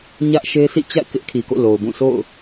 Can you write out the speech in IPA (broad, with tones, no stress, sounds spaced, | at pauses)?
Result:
ɲ ä˦ ʔ ʃ e˦ s ḭ˦˨ t͡ɕ a̰˦˨ ɪ̯ k ɪ˦ ʔ kʰ i˨ k o̰˦˨ l o˨ ʊ̯ b ũ˦˨ s o̰˦˨ ʊ̯